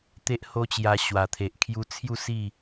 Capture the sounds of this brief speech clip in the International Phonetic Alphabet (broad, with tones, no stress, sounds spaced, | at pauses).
t̪ e˦ ʔ h o˦ t͡ɕ j a˧ ɕ w a˨˩ t̪ʰ e˨ ʔ kʰ j u˧ t͡sʰ j u˥˧ s i˥˧